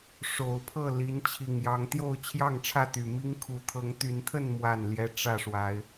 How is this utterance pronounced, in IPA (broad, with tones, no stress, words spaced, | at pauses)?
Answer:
ʂo˨˩ʊ̯pʰɤ˥˨ li˨˦n t͡ɕʰi˨˩ŋjɑ˨˦ŋt̪jo˥˨ʊ̯ t͡ɕʰjɑ˥˨ŋʈ͡ʂʰä˥˨t̪y˨˩mi˦ŋ kʰu˨˩t̪ʰɤ˨˦ŋt̪y˨˦nt̪ʰə˥˨n mwa˥˨nljɛ˦ ʈ͡ʂä˥˨ʂwa˨˦ɪ̯